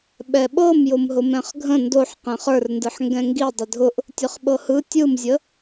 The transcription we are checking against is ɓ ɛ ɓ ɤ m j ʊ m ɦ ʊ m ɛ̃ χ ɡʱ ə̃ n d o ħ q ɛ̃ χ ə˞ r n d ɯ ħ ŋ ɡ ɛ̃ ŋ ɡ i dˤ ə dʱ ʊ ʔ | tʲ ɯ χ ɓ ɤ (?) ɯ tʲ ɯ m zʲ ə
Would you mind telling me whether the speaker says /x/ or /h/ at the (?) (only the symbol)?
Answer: h